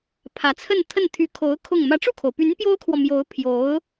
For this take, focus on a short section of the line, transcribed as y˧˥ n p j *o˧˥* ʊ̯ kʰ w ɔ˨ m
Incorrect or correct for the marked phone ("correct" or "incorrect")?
incorrect